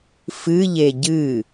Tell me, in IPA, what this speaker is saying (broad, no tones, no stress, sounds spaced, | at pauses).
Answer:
f ɨ ʎ e ɟ ɨ